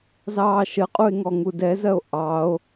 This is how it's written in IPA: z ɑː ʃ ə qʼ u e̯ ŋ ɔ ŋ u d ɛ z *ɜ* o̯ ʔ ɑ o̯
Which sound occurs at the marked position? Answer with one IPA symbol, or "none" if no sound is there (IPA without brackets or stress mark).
ɜ